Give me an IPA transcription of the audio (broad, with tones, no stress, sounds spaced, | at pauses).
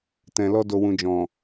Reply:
t ɛ̃˨ l ɔ˧ d o˨ w ũ˨ d͡ʒ ɔ̃˨